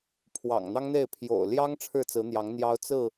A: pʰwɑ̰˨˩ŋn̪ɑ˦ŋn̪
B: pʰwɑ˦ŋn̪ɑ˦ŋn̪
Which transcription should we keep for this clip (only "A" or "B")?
A